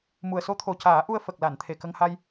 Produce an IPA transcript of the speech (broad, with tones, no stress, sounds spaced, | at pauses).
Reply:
m u˨˩ ə̯ s o˧˥ t̪ʰ o˨˩ c aː˨˩˦ ʔ u˧ ə̯ f ə˨˩ k̚ l a˨˩˨ n t̪ʰ e˨˩ k ə˧ ŋ h a˧ j